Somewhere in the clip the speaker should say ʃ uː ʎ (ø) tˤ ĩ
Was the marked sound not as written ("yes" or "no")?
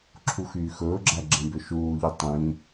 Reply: yes